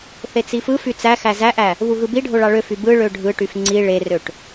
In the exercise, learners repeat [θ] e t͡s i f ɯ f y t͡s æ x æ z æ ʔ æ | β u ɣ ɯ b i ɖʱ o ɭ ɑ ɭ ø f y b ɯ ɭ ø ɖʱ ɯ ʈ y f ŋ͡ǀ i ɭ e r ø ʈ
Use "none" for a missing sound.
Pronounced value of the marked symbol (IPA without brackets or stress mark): θ